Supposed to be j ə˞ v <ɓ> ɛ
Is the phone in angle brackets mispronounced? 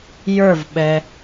no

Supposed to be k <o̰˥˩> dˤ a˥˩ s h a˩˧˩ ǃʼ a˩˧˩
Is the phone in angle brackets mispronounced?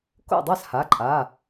no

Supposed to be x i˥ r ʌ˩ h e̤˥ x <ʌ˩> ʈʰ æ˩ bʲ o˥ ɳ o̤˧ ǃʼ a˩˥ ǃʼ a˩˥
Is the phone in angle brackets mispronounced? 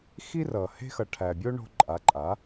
no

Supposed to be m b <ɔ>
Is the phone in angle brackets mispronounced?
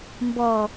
no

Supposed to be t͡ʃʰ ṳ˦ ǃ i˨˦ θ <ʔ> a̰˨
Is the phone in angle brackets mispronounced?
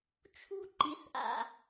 no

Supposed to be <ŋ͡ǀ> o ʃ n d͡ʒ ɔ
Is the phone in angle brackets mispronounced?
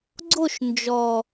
yes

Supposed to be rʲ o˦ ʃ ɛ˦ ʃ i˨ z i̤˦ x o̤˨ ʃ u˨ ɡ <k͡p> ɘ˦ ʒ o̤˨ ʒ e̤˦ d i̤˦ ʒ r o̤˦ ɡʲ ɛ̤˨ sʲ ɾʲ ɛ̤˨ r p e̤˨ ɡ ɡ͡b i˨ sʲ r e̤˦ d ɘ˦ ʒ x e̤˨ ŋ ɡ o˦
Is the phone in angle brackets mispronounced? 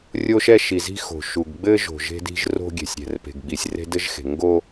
yes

